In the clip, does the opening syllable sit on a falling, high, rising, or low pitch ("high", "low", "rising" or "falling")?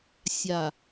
low